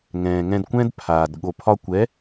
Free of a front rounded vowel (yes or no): yes